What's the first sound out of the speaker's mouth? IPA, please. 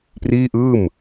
p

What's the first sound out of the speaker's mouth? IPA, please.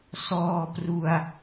s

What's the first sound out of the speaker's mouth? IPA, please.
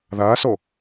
ð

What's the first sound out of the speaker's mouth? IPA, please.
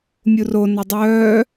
mʲ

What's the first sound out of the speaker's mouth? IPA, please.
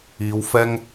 iː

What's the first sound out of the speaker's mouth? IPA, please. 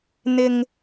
n̪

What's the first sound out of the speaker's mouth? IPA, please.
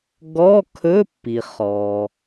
ɡ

